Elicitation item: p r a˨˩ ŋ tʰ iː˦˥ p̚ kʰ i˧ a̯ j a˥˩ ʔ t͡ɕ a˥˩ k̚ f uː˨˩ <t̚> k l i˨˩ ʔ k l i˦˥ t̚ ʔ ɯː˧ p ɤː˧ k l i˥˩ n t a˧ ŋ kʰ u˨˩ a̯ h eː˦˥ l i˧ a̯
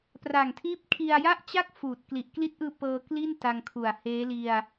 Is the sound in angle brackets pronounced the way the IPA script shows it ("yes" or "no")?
yes